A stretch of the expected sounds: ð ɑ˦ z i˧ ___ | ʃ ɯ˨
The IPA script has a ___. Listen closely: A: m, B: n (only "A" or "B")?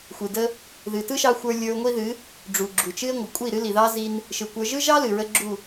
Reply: B